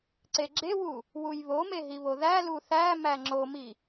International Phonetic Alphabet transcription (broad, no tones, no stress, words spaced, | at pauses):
ǀeɡ͡ǁewu | wujβome ɦiβoðælu θæmæ ŋ͡ǁomi